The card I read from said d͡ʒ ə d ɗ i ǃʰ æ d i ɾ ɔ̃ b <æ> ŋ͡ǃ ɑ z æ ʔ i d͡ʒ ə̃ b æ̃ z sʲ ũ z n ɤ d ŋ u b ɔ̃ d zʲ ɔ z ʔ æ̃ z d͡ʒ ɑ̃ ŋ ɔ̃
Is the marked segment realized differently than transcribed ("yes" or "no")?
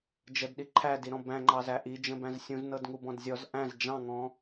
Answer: yes